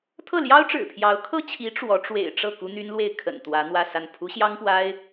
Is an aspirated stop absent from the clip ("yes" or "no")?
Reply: no